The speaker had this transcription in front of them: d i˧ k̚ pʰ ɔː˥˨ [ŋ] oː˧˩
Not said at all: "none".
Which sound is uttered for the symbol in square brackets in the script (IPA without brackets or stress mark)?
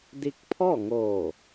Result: ŋ